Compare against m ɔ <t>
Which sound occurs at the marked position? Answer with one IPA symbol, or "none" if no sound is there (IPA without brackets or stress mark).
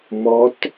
t